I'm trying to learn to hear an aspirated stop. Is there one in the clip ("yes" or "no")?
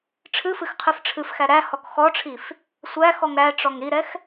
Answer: yes